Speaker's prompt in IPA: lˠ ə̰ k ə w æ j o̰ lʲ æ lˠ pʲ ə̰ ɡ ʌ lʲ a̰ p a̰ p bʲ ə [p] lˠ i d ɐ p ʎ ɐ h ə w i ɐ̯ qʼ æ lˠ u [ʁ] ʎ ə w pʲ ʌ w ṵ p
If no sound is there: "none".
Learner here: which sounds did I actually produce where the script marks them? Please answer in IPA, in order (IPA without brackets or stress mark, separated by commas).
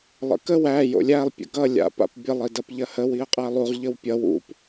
none, ʁ